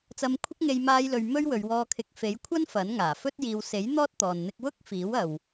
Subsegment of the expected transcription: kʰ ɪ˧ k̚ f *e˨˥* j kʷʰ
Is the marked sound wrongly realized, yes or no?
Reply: no